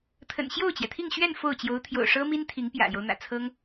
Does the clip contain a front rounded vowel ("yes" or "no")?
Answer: no